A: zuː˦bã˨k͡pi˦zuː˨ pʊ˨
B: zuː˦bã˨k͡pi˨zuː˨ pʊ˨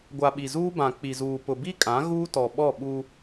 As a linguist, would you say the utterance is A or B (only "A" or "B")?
B